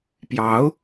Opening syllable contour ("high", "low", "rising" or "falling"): rising